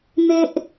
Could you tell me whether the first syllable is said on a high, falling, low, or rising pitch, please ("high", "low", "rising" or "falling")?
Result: high